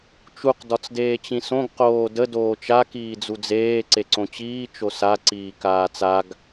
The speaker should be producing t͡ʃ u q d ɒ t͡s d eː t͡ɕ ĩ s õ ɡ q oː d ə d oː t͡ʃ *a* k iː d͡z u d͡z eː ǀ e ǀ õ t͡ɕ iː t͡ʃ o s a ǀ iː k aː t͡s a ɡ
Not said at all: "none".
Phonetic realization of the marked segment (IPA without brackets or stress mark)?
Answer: a